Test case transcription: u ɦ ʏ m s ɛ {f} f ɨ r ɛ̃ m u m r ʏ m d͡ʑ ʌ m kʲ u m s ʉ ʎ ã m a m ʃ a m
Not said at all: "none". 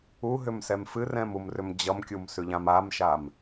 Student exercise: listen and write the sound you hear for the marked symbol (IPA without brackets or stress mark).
m